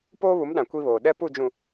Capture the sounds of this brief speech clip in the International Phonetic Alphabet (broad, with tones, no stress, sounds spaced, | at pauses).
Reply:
p oː˦ β u˨˦ m ɗ ã˨ kʷ i˦ β oː˨ ɗ ɛ˦ p u˦˨ d͡ʒ ũ˨